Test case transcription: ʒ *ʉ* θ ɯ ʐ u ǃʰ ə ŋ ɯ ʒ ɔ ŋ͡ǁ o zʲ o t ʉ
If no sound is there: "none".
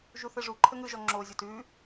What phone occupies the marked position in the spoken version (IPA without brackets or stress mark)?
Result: u